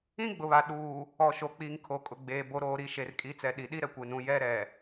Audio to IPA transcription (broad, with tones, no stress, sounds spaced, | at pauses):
ĩ˦ ɡ͡b ʊ˨ β a˨ ɗ uː˨ | ɔ˨ ʃ o˨ k͡p iː˨ ŋ kʰ o˨ kʼ ʊ˨ ɡ͡b eː˨ b o˨ ɾ oː˨ ɾ i˨ ʃ e˨ r kʼ i˨˦ t͡s ɛ˨ ɗ i˨ ɗ i˦ ɾ ɛ˨ kʷ e˨ n ũ˨ j ɛ˦ ɾ ɛ˨